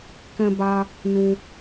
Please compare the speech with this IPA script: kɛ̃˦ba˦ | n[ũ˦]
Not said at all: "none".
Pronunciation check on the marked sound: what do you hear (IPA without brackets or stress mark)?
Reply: ũ˦